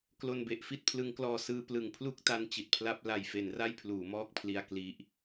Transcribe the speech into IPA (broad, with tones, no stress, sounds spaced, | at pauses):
k l o˧ n b e˨˩ ʔ f i˥˩ t̚ pʰ l ɯ˦˥ ŋ k l ɔː˧ s ɯː˧ p l ɯ˩˦ ŋ pʰ l u˥˩ k̚ t a˧ n t͡ɕ i˨˩ t̚ pʰ l a˥˩ p̚ l a˨˩ j f e˩˦ n r a˥˩ j pʰ l uː˩˦ m ɔː˥˩ k̚ pʰ l i˧ a̯ k l i˦˥ ʔ